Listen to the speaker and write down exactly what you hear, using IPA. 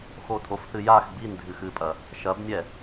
x o tʼ o f θ ɨ j a x b i n dʱ ɨ x ɨ pʼ ɐ | ʃ ɐ b nʲ ɛ

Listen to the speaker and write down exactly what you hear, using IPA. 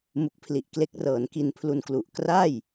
m u˦˥ k̚ pʰ l i˨˩ ʔ k l e˦˥ k̚ r ɤː˩˦ n k i˧ n pʰ l u˧ n k l u˨˩ ʔ k r a˥˩ j

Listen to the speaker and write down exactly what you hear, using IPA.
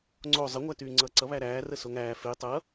ŋ͡ǀ o zˤ ə ŋʷ æ t yː ŋ͡ǀ ʌː ǀ ʌ β æ ɾ æː r ə s o ŋ æː f e tˤ ʌ

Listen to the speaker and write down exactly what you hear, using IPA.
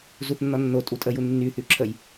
z u θ nː ɔ nː o tʼ u tʼ ə j u nː y θ y ǁʰ ə j

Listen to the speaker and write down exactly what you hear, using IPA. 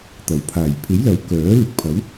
t̪ ɐ˨˩ w pʰ aː˨˩ j pʰ e˨˥ j l ɐ˨˥ w k œː˨˥ l ɪ˨ k̚ pʰ ɐ˨˥ w

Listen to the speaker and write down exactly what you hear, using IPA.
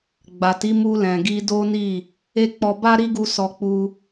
ɡ͡b a˨ t i˨˦ m u˧ l ɛ̃˨ ɡ i˧ d o˦ n i˦˨ | e˦ k͡p ɔ˧ b a˦ ɾ i˦ ɡ u˧ s ɔ˧ k͡p u˧

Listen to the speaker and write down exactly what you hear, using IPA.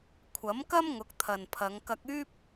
kʷʰ ɐ˨˥ m k ɐ˥ m ŋ ʊ˨˥ k̚ t̪ʰ ɐ˨ n pʰ ɐ˨˧ ŋ k ɐ˧ k̚ yː˥ p̚

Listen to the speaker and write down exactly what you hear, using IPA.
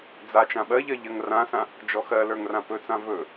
d͡z a t͡ʃ ã ɓ ɜ ʎ ɜ ʎ ɜ ŋ r ã s ã | d͡ʒ ɔ x ɜ l ə˞ ŋ r ã p ɵ t͡s ã v ɵ

